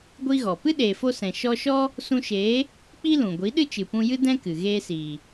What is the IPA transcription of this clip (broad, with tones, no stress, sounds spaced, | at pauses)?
ɡʷ i˦ ɣ ɔ˨ p ɨ˦ ɗ eː˨ f o˧ s ɛ̃˨ ʃ ɔ˧ ʃ ɔ˦ | s ũ˧ ʃ eː˨˦ | k͡p i˦ l ũ˨ ɡʷ i˨˦ ɗ ɨ˦ t͡ʃ ɨ˨ p ũ˧ j ɨ˦ d ɛ̃˦ k ɨ˨ ɣ eː˧ s iː˨